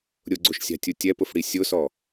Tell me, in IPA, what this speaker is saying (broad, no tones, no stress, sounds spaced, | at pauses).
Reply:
ɾʲ ʊ ɡ͡ǀ o ʃ sʲ a̤ tʲ u tʲ ɛ p ʊ f ɽ i sʲ ʊ s ɔ